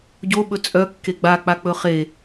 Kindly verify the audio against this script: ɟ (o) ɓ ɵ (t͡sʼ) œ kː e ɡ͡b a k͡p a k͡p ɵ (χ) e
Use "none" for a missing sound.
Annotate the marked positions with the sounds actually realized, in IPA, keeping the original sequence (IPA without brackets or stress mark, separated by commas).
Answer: o, t͡sʼ, χ